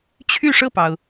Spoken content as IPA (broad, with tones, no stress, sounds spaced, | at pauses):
t͡ɕʰ y˥˧ ʂ ɤ˥˩ p ɑ˩ ʊ̯